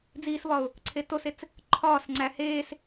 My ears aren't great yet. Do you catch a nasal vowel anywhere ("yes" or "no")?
no